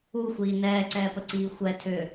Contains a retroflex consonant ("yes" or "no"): no